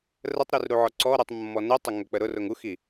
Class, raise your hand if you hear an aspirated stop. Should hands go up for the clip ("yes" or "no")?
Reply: no